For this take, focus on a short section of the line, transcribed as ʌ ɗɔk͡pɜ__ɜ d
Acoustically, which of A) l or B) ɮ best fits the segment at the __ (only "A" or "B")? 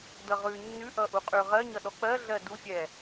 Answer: B